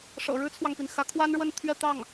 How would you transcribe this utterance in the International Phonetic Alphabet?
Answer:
ʂɤ̰˨˩ɻɻ̩˥t͡sʰwɑ˨ŋpi˩n xä˧˥kʰwa˥nɻwə˥˧n t̪ʰɥɛ˥˧t̪ɑ˥˩ŋ

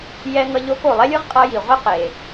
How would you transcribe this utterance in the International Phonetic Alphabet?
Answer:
jɛ˧ ŋʌ˧ʎo˧ko˩ lˠɛ˥lʲɯ˥ʁ qʼʌ˧ji˩ ʁʷi˥qe˩

